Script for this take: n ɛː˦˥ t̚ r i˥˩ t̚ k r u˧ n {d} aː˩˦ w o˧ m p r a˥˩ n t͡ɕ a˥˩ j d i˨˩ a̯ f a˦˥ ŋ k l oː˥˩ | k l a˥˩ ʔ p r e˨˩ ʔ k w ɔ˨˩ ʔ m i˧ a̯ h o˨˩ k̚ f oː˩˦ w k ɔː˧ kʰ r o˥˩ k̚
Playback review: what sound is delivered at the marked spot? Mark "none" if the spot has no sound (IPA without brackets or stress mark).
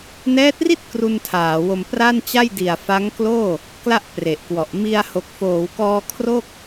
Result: tʰ